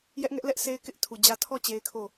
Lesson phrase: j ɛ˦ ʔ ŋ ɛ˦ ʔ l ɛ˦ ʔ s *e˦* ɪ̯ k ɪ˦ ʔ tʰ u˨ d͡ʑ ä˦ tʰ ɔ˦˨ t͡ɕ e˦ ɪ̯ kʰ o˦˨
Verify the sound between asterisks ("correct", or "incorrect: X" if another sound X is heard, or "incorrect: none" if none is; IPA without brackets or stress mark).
correct